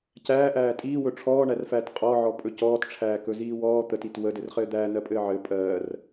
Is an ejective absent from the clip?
no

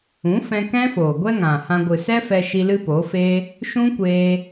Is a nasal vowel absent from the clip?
no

